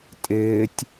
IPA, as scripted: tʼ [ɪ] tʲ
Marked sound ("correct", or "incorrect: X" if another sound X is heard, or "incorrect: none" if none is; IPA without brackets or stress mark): incorrect: ɪː